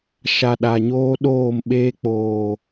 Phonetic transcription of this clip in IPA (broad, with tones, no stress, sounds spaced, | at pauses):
ʃ a˨ ɗ a˨ ɲ oː˦ ɗ oː˦˨ m ɓ eː˦ k͡p oː˨